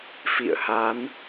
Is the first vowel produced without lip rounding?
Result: yes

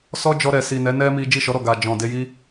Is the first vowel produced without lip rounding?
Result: no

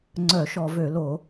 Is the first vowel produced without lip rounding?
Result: no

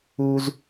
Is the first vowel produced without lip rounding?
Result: no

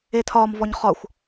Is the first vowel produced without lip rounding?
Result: yes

